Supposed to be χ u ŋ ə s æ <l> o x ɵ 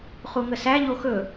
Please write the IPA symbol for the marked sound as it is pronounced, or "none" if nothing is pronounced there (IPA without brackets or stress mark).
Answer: ʎ